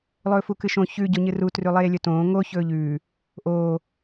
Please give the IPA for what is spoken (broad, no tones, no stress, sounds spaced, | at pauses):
lˠ ɵː f u k ɨ ʃ õ ç ʉ ɟ o ɲ ɨ r u t r ʉ lˠ eː lʲ ɵ t õː ŋ o ç ɵː ʎ ʉː | ʔ oː